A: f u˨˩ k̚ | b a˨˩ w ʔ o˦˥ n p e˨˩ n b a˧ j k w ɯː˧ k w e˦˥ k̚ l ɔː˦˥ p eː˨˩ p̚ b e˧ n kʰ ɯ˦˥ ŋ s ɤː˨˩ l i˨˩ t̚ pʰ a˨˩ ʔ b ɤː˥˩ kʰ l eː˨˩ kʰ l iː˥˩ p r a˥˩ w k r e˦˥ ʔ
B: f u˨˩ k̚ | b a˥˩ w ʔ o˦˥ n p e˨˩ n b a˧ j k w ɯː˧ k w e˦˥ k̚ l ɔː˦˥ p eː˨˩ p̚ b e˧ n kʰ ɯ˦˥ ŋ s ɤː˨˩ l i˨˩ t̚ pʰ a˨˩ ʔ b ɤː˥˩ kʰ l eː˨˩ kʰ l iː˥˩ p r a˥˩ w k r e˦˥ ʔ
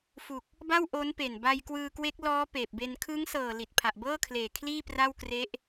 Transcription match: B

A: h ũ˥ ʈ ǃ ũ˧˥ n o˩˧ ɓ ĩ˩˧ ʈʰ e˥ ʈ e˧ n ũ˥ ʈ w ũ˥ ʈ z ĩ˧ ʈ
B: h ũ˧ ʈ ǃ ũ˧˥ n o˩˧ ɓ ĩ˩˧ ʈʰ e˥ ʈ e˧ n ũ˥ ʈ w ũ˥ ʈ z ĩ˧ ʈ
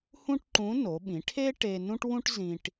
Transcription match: A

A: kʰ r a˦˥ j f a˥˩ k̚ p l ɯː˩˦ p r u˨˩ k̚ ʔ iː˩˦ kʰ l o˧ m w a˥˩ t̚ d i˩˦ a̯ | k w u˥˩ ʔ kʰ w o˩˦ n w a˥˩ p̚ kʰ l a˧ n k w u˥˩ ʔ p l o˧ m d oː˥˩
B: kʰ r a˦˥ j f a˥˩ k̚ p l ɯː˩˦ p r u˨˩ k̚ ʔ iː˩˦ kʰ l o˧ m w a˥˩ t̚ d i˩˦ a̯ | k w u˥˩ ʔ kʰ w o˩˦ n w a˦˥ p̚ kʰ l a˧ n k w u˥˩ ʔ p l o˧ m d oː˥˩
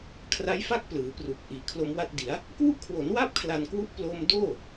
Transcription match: A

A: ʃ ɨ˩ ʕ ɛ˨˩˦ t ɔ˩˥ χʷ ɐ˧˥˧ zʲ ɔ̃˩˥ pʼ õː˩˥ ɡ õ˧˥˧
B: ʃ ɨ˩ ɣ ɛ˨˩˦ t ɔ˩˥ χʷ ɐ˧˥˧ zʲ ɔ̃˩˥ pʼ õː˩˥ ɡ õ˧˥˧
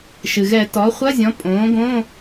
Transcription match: B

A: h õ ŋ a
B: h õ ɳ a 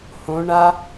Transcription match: B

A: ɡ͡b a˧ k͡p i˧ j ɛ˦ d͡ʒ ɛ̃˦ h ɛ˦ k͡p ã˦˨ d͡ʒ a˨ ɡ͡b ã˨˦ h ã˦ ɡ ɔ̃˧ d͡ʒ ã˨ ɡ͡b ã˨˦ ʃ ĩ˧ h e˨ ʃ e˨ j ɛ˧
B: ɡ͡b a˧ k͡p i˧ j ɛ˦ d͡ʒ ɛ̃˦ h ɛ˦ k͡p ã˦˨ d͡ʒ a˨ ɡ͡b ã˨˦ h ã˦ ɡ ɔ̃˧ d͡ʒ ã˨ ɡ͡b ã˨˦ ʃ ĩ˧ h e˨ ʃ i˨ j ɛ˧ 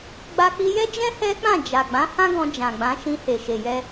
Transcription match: A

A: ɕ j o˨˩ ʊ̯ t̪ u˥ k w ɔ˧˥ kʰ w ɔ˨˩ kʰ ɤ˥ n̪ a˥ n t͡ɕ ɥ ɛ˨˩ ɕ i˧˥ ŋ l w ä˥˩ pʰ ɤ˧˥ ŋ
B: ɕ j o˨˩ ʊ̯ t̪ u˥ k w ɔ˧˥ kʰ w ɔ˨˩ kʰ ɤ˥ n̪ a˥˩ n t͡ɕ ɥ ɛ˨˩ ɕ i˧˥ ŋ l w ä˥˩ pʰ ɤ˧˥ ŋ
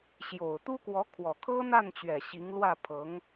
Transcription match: B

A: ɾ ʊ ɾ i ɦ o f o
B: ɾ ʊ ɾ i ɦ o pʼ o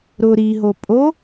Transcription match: B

